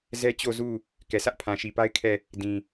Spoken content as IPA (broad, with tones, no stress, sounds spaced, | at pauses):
z ɛ˦ t͡ɕ o˦˨ z u˦˨ | k ɛ˨ s ä˦ ʔ pʰ ã˨ ʃ i˨ p a˦ ɪ̯ kʰ ɛ˦˨ | d ĩ˨